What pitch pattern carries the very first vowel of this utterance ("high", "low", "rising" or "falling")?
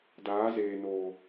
rising